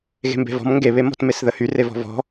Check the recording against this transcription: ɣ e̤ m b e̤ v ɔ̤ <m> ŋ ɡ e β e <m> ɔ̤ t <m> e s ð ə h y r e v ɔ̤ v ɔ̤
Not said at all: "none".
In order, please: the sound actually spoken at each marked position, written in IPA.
m, m, m

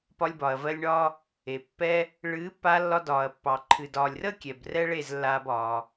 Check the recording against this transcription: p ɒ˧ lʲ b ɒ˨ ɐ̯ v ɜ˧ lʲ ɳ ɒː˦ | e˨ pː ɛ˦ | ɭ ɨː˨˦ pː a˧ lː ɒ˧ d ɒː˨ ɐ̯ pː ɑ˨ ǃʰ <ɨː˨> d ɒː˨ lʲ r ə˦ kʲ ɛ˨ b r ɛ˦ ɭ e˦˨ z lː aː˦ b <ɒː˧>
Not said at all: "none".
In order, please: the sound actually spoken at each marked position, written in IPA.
ɨ˨, ɒː˧

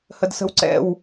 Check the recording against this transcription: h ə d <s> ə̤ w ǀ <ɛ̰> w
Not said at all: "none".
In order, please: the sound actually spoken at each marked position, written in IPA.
s, ɛ̰

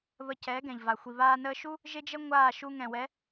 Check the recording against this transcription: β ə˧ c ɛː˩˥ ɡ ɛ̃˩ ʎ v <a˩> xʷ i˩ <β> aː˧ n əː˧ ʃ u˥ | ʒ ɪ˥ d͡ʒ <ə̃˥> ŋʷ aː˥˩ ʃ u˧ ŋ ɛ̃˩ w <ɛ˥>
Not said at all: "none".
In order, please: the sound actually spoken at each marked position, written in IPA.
a˩, β, ə˥, ɛ˩˥

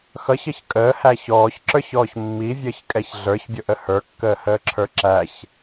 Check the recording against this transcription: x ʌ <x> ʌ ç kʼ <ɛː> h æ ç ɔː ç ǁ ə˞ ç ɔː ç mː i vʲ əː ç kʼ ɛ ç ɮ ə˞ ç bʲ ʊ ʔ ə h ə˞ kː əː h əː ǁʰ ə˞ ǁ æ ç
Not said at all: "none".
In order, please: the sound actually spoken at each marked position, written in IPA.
ç, əː

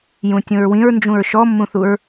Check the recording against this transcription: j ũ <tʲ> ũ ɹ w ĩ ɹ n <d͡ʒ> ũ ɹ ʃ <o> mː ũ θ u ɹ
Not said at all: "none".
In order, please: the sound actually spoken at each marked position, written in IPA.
tʲ, d͡ʒ, ɔ

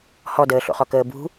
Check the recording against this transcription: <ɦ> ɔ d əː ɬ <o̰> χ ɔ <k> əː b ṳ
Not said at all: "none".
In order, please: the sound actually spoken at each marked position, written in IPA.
h, o̰, k

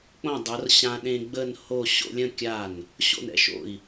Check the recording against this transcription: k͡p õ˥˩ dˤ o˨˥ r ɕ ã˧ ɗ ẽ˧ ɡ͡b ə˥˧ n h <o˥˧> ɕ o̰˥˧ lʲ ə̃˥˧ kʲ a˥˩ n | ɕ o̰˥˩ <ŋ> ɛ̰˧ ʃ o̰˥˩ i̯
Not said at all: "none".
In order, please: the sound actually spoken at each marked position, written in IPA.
o˥˧, n

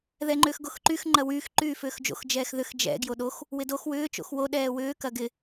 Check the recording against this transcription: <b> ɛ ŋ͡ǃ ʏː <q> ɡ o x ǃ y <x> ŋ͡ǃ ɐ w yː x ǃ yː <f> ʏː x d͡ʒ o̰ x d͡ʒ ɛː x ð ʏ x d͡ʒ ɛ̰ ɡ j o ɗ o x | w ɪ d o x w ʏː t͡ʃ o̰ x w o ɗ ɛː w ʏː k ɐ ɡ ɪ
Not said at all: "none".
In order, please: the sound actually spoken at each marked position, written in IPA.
ð, x, x, f

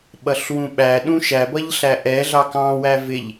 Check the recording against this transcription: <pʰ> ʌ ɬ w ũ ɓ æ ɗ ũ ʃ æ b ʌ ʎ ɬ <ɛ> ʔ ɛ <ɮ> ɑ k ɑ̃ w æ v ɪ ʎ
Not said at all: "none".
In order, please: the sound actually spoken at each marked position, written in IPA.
ɓ, æ, ɮ

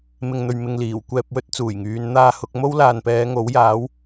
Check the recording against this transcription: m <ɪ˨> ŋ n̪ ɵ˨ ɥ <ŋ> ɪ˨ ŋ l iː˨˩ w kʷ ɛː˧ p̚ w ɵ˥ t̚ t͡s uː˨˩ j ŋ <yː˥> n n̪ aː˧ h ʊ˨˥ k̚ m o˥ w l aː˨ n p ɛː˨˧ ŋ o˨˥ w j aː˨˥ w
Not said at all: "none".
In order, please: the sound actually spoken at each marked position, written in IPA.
ɪ˨, m, yː˨˧

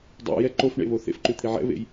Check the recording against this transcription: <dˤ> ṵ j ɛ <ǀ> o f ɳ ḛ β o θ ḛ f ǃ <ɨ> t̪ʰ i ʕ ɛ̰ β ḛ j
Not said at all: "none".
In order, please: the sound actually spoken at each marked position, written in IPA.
dˤ, ǃ, ʉ

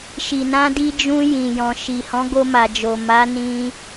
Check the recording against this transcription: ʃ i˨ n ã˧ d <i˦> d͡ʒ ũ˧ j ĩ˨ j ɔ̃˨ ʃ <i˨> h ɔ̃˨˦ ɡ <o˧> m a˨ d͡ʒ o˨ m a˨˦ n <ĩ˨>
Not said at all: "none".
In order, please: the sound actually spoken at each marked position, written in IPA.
i˧, i˨, o˧, ĩ˧

